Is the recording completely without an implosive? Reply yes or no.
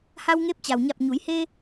yes